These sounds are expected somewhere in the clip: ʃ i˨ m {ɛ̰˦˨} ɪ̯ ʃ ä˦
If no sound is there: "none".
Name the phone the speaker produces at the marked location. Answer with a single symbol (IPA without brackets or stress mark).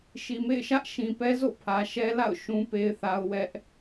ḛ˦˨